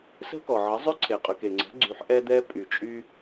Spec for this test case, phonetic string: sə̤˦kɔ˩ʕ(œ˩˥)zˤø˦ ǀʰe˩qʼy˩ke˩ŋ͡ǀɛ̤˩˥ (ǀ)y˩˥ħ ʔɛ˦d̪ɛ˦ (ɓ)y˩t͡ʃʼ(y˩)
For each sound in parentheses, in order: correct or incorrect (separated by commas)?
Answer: incorrect, incorrect, incorrect, incorrect